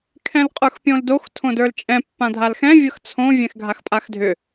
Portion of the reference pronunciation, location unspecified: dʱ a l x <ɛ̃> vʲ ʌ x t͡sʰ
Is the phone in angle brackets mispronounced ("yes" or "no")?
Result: no